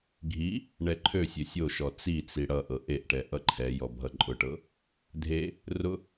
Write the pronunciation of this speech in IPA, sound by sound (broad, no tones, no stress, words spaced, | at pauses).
ɡʱi | ɳɛǃʰøsʲø sʲoʃɔ t͡sit͡si ɽʌʔɤ ʔeʔʈɛ ʔʌǃʰɛjɔ bʱʌǃʼʊʈɤ | dʱe | rʊ